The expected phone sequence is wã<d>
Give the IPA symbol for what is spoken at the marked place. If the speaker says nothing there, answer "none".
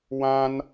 n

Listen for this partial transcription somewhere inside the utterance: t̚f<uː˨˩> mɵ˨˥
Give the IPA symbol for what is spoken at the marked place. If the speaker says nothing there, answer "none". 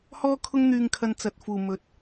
uː˨˩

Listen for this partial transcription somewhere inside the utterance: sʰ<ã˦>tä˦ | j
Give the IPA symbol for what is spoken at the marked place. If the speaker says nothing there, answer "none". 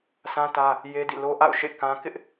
ã˦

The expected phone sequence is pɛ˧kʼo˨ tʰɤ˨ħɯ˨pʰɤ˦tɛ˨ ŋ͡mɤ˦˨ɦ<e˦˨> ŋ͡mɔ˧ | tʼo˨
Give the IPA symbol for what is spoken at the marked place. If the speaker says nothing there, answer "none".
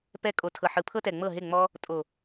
e˦˨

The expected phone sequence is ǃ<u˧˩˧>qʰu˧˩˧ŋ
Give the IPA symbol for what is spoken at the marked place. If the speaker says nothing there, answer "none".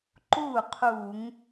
u˥˩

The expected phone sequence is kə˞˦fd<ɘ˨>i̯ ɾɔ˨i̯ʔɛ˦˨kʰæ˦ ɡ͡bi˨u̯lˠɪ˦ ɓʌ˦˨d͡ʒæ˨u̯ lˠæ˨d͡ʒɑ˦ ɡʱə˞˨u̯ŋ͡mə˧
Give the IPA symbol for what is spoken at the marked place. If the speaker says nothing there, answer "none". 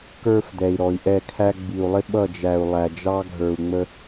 ɛ˨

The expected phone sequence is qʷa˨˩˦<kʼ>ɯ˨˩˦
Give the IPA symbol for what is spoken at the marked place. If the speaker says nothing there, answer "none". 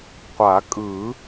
kʼ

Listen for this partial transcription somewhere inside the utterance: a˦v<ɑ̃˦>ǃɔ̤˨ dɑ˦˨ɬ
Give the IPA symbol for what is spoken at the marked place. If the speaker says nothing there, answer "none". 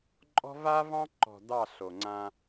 ɑ̃˦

